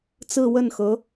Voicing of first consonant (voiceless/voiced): voiceless